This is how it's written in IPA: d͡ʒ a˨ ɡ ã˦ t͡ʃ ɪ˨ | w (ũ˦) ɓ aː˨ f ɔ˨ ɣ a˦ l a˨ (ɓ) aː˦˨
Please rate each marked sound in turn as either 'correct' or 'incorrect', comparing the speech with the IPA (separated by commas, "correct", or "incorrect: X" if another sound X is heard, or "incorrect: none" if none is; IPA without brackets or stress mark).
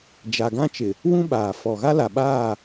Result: correct, correct